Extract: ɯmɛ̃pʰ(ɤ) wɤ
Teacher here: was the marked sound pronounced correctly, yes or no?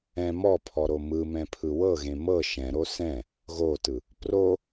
no